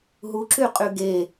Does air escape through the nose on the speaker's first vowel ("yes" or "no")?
no